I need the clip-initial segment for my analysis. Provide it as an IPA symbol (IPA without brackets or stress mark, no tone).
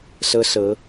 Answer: s